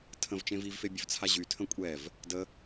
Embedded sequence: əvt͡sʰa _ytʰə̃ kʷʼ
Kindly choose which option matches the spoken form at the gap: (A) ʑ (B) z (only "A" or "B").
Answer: A